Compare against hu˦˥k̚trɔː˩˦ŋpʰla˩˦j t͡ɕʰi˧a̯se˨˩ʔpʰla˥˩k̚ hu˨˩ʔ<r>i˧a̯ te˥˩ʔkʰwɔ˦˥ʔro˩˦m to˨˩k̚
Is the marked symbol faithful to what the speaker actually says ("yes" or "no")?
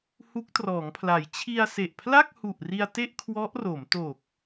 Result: yes